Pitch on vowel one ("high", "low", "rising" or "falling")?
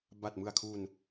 low